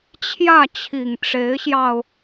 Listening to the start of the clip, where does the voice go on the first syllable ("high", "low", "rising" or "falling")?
falling